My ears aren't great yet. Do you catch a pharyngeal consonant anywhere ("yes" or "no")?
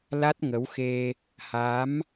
no